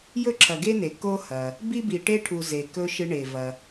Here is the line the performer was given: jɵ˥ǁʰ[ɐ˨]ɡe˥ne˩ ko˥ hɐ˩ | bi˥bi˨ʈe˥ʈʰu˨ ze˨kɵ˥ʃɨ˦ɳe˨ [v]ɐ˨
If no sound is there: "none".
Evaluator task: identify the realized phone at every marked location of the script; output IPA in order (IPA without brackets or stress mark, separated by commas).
ɐ˨, v